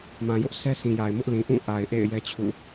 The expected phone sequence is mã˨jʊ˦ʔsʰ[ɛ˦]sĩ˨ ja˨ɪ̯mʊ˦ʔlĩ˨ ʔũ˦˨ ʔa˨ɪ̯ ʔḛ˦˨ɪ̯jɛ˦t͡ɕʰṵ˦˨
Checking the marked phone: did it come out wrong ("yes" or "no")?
no